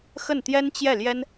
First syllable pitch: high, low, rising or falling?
falling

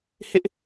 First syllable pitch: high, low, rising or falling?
high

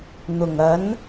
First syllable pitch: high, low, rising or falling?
low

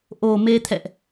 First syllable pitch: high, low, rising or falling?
low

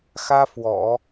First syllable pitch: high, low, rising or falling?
high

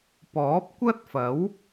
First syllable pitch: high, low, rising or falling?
rising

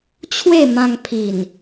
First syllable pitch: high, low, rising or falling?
falling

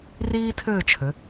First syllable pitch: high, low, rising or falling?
high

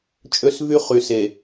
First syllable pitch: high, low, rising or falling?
high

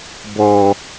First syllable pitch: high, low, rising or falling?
low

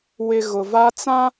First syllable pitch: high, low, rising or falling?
low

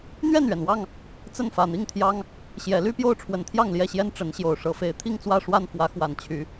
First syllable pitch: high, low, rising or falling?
falling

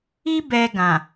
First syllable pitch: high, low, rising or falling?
high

